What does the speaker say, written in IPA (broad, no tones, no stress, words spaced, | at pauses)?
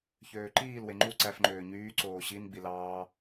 çøːǃiːlwe ŋ͡ǃu ǀæfŋ͡ǃøː ɲyː ǀoːɕin ɡ͡bilɑː